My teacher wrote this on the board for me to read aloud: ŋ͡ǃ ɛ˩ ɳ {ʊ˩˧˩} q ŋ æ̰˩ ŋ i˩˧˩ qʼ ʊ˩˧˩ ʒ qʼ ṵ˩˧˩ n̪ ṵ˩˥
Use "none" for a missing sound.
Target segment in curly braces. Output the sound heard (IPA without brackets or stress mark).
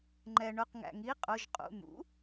ʊ˩˧˩